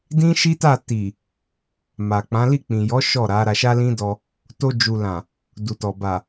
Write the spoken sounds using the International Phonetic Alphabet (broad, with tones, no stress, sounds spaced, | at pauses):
d ĩ˦ ʃ i˦ t a˦˨ t i˨ | m a˨ k͡p ã˨˦ l i˦˨ k͡p ĩ˨ j ɔ˨˦ ʃ ɔ˦˨ ɾ a˨˦ ɾ a˧ ʃ a˦ l ĩ˦ d ɔ˧ | t o˧ d͡ʒ u˨ l ã˨ | d u˨ t ɔ˨ b a˨